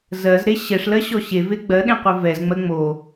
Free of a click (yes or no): yes